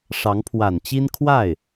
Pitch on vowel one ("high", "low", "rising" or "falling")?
rising